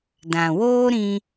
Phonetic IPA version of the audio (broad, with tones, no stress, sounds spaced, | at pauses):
d ã˨ w oː˦ ɾ ĩ˧